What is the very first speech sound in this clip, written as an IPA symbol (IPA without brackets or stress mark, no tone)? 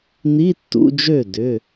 n̪